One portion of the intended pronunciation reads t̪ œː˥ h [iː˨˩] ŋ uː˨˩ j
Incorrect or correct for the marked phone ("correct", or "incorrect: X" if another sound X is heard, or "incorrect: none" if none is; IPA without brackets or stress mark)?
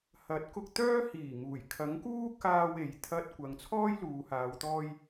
correct